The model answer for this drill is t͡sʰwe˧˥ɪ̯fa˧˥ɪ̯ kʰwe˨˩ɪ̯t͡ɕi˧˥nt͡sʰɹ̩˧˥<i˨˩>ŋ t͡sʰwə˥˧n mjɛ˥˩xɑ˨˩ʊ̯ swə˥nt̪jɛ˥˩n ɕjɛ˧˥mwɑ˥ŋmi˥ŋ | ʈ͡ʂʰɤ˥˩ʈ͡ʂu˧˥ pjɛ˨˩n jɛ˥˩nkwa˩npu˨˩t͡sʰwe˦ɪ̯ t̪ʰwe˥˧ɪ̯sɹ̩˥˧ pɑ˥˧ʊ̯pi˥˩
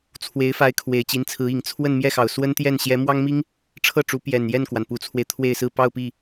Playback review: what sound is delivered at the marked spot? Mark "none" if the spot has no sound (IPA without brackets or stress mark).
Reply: i˨˩